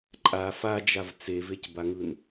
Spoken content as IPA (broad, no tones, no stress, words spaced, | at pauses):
ǃʼa fad͡ʒav t͡sevecbaŋɯn